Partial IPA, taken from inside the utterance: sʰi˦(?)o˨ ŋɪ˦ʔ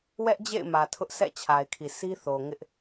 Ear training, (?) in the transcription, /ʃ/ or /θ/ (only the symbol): θ